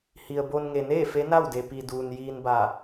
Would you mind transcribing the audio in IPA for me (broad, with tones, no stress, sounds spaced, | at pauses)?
h i˩ ə̯ b o˧ n ŋ e˩ n eː˥˨ f e˧˥ n a˥˨ w d e˩ p i˩ d uː˩ n j iː˧ n b a˧˩